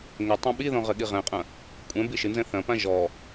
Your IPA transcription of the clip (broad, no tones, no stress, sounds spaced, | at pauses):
ŋ ɘ tˤ ɐ̃ ɓ i ð ɔ̃ ʁ ɘ ɠ i ʁ ɛ̃ qʼ ɐ̃ | kʷʼ ɛ̃ b i ʃ ɨ n z ɛ̃ θ ɐ̃ p ã ʒ ɔ